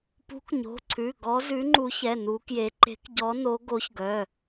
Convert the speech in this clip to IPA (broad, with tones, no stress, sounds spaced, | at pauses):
p ṳ˨˥ k ɲ o̤˩˧˩ ǀʰ ʉ˩˧˩ ɡ ɔ˨˥ z ʉ˨˥ ŋ͡ǃ u˨˥ ç ɛ˩˧˩ n u˨˥ k j e˨˥ ǃ e̤˨˥ k ɟ ɔ˨˥ n o˨˥ ɡ o˨˥ ç ɡ œ˩˧˩